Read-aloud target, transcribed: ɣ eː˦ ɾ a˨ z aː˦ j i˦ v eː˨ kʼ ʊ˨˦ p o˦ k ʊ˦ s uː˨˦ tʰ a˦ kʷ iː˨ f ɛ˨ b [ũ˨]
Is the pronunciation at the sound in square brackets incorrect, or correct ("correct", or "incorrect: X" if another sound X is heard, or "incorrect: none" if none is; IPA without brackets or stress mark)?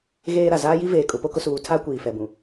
correct